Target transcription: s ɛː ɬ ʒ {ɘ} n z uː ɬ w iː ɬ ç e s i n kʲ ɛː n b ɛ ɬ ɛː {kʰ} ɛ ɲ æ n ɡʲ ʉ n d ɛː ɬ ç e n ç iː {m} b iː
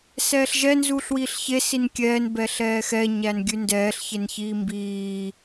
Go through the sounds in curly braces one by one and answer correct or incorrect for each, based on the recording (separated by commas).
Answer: incorrect, incorrect, correct